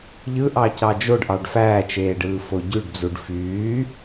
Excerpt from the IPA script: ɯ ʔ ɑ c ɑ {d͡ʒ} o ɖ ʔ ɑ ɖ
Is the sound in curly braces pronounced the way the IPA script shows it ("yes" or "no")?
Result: yes